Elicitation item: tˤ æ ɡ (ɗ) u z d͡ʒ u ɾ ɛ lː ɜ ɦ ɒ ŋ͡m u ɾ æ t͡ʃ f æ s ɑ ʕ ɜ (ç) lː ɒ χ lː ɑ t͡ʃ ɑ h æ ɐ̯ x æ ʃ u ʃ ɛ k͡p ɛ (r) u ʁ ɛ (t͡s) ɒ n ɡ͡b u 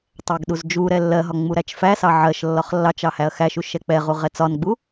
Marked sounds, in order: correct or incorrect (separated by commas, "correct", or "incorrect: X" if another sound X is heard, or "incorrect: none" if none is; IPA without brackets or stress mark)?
correct, incorrect: ʃ, incorrect: ʁ, correct